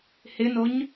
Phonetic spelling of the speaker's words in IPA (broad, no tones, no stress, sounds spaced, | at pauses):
h ɪ n o ɲ